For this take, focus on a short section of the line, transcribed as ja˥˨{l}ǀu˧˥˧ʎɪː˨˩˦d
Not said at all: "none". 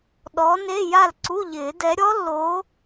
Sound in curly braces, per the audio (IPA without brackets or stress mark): l